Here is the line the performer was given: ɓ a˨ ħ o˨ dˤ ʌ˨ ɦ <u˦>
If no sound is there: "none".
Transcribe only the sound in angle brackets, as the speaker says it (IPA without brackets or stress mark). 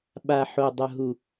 u˨